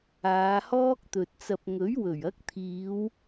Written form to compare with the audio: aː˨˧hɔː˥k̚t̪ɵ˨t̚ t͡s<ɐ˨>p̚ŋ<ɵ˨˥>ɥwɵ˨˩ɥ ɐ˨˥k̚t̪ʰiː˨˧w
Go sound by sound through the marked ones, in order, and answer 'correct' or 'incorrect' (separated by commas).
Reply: correct, correct